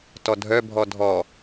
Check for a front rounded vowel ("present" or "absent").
present